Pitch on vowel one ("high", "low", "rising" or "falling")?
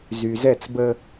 low